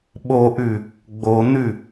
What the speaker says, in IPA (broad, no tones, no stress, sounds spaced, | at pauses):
ɓ o ʔ ʉ | ɡ͡b o n̪ ʉ